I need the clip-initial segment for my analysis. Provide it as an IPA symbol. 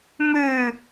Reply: m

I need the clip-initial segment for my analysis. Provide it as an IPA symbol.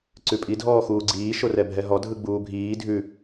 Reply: ǀ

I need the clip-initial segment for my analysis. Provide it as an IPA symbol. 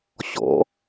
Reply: ɕ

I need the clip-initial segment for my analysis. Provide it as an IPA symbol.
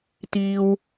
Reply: t̪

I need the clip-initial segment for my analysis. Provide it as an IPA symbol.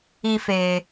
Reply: i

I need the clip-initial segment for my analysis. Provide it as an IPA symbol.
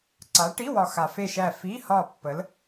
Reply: ǀ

